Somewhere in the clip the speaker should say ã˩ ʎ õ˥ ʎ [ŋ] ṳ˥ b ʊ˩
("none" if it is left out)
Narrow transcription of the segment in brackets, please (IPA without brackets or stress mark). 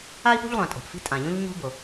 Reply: ɲ